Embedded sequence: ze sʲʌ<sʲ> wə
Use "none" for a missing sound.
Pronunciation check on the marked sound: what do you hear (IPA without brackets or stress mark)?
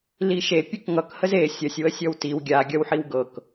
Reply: sʲ